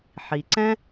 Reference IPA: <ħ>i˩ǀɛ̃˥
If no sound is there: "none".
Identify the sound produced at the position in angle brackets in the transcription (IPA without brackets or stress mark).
ħ